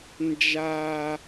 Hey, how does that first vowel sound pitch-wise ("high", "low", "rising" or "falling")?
high